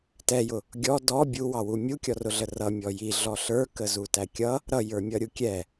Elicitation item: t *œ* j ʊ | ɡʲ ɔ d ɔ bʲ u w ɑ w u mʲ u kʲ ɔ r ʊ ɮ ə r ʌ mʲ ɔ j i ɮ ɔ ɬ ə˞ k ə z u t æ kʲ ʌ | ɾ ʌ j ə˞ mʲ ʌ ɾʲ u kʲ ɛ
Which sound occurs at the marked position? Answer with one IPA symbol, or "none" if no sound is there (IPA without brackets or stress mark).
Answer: ɛ